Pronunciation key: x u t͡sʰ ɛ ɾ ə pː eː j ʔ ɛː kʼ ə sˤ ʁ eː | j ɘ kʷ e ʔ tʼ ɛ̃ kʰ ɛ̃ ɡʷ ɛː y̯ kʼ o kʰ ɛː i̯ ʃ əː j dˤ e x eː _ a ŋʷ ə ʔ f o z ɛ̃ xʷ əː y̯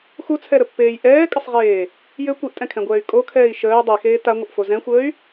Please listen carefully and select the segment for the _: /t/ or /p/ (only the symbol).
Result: t